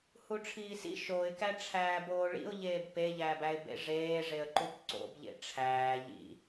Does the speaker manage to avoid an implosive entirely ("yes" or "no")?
yes